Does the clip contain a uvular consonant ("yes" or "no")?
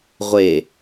yes